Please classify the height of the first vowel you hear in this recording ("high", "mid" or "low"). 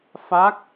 low